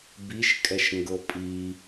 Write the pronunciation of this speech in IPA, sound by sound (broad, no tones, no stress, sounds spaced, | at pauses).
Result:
b i ʃ kʼ ɛ ʃ ŋ ɡ ɤ pʼ i